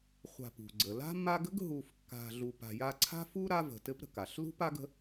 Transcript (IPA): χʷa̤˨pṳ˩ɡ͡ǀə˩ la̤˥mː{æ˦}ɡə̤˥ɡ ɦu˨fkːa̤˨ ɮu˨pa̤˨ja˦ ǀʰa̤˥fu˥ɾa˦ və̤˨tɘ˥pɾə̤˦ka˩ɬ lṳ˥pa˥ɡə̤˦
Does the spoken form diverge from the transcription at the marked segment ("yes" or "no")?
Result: yes